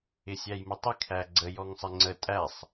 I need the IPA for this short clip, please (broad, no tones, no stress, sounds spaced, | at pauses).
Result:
ɪ sʲ æ j m ə tˤ ɪ kʰ æ ɡ͡ǀ ə j ɔ ŋ sˤ ɪ ŋ͡ǀ ə tʼ æ sˤ